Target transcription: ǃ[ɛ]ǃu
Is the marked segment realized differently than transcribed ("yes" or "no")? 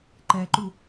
no